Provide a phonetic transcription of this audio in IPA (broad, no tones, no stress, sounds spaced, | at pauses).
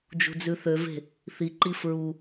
d͡ʒ ṳ d͡z ʉ θ ø v e̤ | θ i ǃ i f ɹ u